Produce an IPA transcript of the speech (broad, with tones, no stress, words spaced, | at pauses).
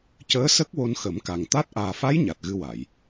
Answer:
cəː˧˥sə˦˥k̚ wo˧nxə˨˩˦mka˨˩ŋt̪a˦˥t̚ ʔaː˨˩fa˧˥j ɲa˨˩t̚ɣɨ˧wa˨˩˨j